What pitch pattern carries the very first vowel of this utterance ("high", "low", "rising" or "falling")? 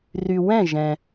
low